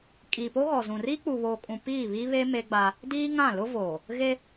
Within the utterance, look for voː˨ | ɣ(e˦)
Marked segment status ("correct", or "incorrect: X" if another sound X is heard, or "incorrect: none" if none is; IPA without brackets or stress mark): correct